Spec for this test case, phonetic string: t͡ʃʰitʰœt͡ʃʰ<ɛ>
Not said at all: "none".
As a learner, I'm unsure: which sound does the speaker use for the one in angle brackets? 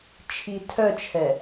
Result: ɛ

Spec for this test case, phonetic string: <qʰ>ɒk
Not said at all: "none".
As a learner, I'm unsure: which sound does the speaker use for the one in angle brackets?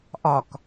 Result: ʔ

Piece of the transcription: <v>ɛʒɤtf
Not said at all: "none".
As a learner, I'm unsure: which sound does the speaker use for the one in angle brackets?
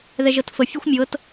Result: ð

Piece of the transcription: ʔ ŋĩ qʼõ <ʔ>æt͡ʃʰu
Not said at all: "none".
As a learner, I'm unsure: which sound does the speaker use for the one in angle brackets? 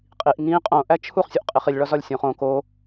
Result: ʔ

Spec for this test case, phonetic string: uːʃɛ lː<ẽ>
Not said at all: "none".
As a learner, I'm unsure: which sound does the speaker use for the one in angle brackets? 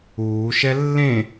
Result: ẽ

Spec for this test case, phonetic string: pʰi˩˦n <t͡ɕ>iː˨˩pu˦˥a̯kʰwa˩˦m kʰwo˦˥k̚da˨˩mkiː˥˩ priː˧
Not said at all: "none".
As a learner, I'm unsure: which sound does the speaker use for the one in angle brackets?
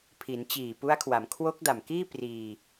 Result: t͡ɕ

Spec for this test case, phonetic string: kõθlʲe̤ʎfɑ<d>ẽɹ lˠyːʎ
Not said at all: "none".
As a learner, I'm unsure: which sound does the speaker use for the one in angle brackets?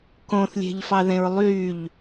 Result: ð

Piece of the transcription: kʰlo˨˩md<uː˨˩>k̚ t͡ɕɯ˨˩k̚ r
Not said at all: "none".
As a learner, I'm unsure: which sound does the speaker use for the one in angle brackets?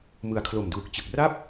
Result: uː˨˩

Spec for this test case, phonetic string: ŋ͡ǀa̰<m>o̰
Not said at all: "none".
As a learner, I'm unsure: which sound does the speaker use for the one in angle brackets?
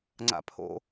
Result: pʰ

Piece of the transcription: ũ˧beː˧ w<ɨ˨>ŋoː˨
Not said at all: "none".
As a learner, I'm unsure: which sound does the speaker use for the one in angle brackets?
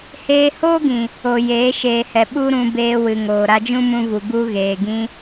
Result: ɨ˨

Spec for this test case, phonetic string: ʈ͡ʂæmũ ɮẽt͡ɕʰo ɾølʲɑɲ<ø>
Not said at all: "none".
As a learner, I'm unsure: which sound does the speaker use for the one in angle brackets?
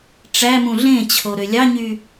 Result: y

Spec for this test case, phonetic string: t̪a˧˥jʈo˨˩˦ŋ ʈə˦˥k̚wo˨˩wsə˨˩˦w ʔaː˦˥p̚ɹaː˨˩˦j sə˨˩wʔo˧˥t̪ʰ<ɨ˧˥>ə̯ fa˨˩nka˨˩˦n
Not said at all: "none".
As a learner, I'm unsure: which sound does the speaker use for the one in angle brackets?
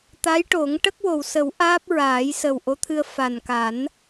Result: ɨ˧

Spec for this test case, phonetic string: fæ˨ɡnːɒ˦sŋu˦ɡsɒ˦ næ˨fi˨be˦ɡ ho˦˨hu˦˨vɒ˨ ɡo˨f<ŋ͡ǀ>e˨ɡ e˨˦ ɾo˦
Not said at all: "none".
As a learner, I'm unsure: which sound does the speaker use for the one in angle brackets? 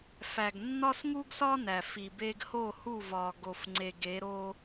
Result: ŋ͡ǀ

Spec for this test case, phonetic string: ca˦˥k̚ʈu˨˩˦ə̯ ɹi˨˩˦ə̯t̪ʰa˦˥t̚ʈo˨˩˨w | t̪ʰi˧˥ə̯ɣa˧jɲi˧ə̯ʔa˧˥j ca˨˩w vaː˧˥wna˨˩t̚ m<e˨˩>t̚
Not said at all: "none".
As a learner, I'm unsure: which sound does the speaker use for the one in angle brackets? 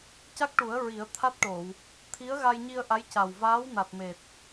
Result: e˨˩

